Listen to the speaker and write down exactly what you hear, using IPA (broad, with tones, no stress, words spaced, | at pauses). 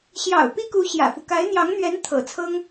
ɕjɑ̰˨˩ʊ̯ pi˥ku˧˥ ɕjä̰˨˩fu˦ ka˧˥ɪ̯n̪jɑ˧˥ŋn̪ɥɛ˧˥n t̪ʰɤ̰˨˩t͡sʰɤ˥ŋ